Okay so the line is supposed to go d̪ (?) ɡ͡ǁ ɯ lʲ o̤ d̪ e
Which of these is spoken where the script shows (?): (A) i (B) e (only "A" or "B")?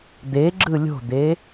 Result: B